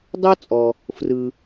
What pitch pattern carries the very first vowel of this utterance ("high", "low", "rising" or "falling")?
high